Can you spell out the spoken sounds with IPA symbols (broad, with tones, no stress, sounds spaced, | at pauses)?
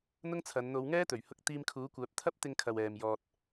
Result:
n̪ ʊ˥ ŋ t͡sʰ ɐ˨˧ n n̪ o˨˧ w ŋ ɛː˥ t̪ ɵ˨˩ ɥ h ʊ˧ k̚ t̪ iː˧ m kʰ uː˨˥ kʷ œː˨˥ p̚ t̪ʰ ɐ˥ p̚ t̪ ɪ˧ ŋ kʰ ɐ˨ w ɛː˨ m j ɔː˨ t̚